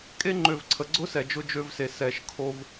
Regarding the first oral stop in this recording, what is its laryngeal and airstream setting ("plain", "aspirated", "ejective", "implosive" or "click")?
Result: ejective